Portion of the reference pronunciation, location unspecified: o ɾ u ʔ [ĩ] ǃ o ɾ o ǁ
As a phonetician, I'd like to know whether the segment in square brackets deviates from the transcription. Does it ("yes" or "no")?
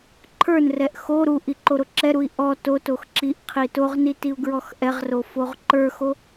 yes